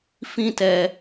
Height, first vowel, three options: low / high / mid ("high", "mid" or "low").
high